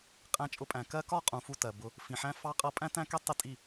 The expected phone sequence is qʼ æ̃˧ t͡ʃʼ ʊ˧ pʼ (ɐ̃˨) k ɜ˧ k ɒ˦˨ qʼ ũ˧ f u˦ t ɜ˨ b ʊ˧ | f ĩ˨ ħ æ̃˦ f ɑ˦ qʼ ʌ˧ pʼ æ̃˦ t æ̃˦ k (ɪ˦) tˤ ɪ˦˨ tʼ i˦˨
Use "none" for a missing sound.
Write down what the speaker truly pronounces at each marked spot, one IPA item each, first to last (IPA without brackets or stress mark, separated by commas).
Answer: æ̃˨, ɛ˦